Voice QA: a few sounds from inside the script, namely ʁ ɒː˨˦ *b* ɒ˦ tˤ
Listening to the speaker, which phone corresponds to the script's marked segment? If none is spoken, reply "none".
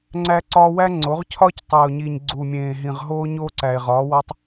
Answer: w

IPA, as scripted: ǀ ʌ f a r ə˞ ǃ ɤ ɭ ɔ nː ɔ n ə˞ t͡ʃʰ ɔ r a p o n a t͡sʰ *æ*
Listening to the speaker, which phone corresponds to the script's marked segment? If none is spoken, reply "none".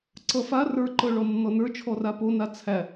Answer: æ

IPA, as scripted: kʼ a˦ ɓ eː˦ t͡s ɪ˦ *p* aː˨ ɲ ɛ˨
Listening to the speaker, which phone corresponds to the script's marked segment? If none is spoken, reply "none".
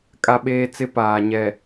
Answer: p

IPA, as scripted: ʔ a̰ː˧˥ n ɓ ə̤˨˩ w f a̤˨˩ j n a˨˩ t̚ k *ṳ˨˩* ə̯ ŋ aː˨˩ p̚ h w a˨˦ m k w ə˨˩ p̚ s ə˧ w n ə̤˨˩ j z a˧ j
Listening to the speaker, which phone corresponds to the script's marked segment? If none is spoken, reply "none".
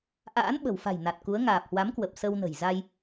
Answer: u˨˦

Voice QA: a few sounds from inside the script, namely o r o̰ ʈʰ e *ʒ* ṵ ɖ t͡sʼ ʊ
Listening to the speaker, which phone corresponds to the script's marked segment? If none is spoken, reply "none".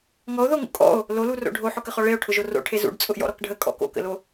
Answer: z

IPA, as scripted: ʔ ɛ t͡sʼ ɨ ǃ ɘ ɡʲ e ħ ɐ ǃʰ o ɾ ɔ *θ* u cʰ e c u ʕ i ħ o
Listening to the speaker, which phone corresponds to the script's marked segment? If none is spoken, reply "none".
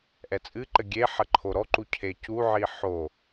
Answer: ǃ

